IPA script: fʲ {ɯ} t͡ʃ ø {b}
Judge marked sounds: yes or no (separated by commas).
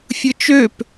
yes, no